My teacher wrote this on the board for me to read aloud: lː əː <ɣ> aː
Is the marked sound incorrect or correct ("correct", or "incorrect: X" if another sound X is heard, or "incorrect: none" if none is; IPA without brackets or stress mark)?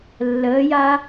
incorrect: j